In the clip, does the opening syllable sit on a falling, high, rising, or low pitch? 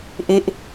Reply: falling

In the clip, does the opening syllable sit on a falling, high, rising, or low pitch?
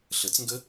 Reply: rising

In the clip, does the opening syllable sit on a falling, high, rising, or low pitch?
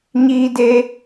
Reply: high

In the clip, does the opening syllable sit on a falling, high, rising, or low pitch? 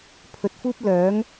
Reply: rising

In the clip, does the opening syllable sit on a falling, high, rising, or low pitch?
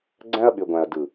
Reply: high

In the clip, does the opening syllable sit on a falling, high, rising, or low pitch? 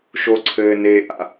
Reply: high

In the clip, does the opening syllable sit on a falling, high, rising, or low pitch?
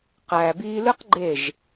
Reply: low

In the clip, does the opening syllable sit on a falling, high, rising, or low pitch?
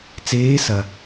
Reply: rising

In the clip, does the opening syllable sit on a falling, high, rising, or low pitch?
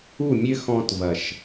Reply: falling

